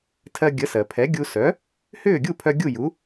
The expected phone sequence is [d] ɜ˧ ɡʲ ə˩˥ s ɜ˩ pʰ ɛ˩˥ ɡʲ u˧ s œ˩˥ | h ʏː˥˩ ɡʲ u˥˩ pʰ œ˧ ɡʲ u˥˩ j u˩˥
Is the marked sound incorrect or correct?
incorrect